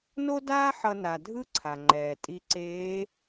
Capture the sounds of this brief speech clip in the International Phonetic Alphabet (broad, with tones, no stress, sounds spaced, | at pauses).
n o˥ d aː˥ ħ ʌ˧ n a˩ dʱ ɯ˥ ǀʰ a˩ ŋ͡ǃ ɛː˩ tʼ i˧ ǀ eː˧˥